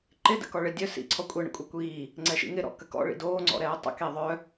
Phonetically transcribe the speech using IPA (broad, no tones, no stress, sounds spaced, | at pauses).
ǃ ɪ d ə̰ k ɔ ɭ ɪ dʲ œ s ḭ ǀʰ ɔ kʷʼ e ɳ ə̰ kʷʼ ɛ kʷ iː | ŋ͡ǀ ɛ ʃ ḭ ŋ ɪ ɾ ɔ̰ k ə k ɔ̰ ɭ ḭ d oː ŋ͡ǀ ɔ̰ ɾ ɛː tˤ ə̰ k e ðˤ œ